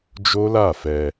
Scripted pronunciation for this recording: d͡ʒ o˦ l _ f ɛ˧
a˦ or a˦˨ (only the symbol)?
a˦˨